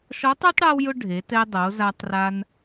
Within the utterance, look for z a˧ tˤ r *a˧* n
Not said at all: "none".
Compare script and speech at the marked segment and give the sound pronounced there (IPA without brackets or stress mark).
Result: a˧